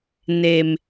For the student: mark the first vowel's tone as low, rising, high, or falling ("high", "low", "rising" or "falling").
low